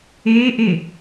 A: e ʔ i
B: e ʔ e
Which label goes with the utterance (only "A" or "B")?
B